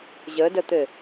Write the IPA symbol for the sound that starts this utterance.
ʑ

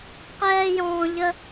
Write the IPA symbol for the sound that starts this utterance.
q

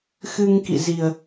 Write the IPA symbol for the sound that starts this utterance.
x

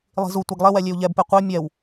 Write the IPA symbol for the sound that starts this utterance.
lˠ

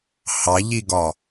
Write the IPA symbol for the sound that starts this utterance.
h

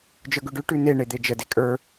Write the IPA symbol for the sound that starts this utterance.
d͡ʒ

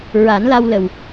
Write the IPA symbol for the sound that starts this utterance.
ɹ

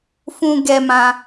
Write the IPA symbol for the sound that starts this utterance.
f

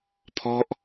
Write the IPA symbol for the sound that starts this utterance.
pʰ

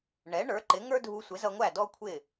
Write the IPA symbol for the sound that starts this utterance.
ɳ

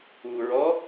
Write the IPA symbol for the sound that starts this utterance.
u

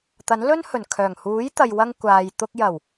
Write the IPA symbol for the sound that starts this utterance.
t̪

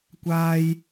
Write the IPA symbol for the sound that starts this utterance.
kʷ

